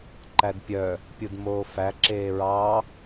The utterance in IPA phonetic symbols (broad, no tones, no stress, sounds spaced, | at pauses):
ǃ æ d pʲ œ | pʲ u d m oː f æ ǁ eː ɹ ɑ